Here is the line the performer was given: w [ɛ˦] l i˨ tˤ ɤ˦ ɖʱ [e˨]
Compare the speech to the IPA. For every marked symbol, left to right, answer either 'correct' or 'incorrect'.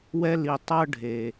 correct, correct

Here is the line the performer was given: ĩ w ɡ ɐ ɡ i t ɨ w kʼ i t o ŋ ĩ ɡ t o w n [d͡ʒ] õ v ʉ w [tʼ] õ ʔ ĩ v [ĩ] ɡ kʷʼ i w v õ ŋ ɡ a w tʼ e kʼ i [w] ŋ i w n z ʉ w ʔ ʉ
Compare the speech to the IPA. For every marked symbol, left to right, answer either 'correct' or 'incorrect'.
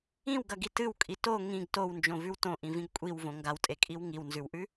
correct, incorrect, correct, correct

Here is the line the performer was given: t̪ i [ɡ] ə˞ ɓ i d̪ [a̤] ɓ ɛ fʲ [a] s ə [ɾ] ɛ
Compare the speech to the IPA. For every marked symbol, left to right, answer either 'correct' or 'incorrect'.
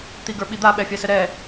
correct, incorrect, correct, correct

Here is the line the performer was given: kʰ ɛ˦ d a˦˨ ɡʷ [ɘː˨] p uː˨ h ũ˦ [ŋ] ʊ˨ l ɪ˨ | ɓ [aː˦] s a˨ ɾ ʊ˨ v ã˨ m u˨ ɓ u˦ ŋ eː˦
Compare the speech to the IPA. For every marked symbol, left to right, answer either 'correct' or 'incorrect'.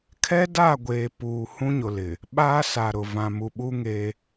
incorrect, incorrect, correct

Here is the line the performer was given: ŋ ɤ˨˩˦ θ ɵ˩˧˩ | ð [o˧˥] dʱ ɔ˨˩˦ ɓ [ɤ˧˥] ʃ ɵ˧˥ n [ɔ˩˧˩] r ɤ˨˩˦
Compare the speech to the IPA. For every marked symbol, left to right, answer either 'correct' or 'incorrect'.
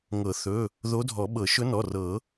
correct, incorrect, correct

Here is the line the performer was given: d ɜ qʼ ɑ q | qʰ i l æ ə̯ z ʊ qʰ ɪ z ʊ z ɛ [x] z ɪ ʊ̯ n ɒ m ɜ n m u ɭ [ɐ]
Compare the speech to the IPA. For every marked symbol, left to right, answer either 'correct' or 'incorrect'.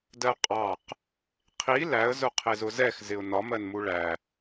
correct, incorrect

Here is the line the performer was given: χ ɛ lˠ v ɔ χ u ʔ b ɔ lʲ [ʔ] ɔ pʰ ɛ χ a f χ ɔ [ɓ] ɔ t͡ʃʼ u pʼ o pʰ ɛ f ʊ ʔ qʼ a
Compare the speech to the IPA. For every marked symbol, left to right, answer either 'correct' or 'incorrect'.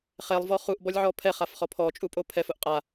incorrect, incorrect

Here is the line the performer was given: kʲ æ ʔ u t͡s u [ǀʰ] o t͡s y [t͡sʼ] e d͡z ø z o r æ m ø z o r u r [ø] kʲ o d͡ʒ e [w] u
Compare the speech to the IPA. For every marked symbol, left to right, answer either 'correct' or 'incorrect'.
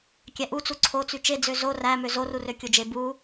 correct, incorrect, correct, incorrect

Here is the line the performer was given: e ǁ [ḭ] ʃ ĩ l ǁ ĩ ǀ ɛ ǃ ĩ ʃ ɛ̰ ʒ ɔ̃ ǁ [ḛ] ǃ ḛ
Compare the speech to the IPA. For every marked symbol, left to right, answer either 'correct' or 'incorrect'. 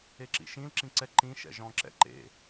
correct, incorrect

